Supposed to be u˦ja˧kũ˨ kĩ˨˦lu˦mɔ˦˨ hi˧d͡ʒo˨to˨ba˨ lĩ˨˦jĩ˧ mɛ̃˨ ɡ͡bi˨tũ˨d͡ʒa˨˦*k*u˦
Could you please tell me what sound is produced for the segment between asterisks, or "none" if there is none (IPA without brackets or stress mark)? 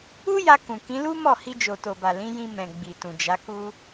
k